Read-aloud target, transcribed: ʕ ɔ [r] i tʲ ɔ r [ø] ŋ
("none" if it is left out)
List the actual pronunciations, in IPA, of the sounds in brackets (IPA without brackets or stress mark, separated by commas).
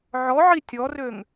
ʕ, ø